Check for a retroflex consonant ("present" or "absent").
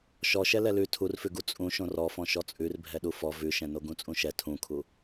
absent